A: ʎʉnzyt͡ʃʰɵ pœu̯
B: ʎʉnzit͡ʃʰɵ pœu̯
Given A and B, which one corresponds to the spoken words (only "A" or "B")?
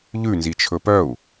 B